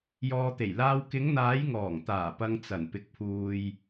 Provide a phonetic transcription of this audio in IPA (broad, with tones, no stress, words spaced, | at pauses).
jɔː˨t̪e˨˩j laː˧w kɪ˨˧ŋn̪aː˨˧jŋɔː˨˩ŋt̪aː˨˩ pɐ˧ŋ t͡sɐ˨˩n pɪ˨k̚pʰuː˨j